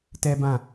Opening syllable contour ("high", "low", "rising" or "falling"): high